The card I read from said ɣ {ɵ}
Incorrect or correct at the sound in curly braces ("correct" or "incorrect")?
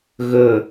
correct